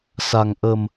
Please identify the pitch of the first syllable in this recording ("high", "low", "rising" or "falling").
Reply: low